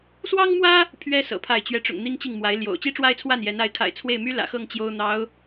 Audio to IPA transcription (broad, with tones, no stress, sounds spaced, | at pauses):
s w ɑ˥ ŋ m w ä˥ | pʰ ɥ ɛ˥ s ɤ̰˨˩ pʰ a˥˩ ɪ̯ t͡ɕ ɥ ɛ˧˥ ʈ͡ʂ ʊ̰˨˩ ŋ n̪ i˥ ŋ t͡ɕ i˥˩ ŋ m w a˧˥ ɪ̯ l j o̰˨˩ ʊ̯ t͡ɕ i˥ ʈ͡ʂ w a˥ ɪ̯ t͡sʰ w a˥˩ n j ɛ˧˥ n a˧˥ ɪ̯ kʰ a̰˨˩ ɪ̯ t͡sʰ w e˥˩ ɪ̯ m y˥ l ä̰˨˩ x ɤ˥˩ ŋ t͡ɕ j o˥ ʊ̯ n̪ ɑ˧˥ ʊ̯